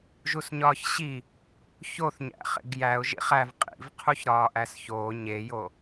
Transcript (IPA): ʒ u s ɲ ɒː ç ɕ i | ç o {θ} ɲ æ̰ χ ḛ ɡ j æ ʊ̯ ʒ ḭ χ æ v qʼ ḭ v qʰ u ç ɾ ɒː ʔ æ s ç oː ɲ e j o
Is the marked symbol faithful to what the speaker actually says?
yes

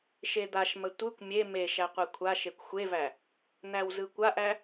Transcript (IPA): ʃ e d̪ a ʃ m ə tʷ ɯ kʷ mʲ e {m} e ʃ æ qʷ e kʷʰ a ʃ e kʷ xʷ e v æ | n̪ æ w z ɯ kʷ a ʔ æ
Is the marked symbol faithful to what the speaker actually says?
yes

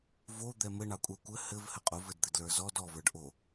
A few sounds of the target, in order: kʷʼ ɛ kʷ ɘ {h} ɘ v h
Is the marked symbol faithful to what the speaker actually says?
yes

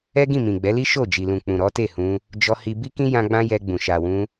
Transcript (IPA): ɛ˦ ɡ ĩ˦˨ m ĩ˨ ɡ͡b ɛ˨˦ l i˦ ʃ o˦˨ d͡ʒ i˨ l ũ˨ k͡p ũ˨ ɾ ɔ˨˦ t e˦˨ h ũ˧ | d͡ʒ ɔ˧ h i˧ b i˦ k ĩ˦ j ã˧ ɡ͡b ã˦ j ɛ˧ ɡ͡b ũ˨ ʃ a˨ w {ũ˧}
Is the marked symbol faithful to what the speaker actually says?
yes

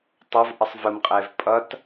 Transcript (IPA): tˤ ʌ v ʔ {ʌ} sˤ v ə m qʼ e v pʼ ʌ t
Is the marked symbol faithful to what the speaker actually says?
yes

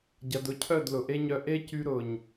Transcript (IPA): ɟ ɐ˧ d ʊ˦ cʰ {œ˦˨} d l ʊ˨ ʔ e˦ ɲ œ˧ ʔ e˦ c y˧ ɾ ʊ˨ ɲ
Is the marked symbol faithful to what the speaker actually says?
yes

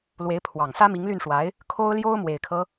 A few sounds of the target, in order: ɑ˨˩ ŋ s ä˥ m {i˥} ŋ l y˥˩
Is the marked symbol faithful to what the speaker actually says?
no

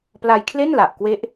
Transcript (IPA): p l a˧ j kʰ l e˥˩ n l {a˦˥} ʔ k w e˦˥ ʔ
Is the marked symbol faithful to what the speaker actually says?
no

